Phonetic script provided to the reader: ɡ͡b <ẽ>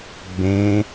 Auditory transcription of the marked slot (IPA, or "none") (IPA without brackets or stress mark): ẽ